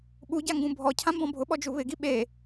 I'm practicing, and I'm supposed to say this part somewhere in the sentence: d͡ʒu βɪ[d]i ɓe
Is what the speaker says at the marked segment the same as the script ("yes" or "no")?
no